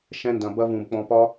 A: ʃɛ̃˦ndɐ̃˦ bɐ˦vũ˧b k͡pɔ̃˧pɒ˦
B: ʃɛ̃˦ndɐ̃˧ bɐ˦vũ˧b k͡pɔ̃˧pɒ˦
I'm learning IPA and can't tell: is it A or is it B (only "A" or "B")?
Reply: B